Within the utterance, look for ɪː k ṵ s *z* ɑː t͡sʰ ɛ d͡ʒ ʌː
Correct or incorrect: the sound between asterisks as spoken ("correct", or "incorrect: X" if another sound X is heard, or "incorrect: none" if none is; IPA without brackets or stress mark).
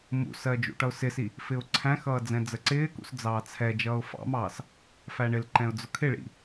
incorrect: d͡z